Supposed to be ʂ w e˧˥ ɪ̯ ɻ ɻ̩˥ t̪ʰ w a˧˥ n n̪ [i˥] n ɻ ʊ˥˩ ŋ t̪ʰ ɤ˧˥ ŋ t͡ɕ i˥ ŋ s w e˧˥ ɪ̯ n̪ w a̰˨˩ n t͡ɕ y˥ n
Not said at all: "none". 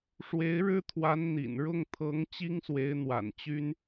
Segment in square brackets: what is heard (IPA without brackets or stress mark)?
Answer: ḭ˨˩